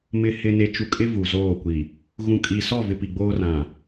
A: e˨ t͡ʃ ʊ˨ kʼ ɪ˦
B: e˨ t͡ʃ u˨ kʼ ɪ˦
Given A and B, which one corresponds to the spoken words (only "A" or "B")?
B